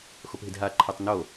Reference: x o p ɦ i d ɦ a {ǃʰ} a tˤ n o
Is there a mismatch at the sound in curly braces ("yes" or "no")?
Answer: no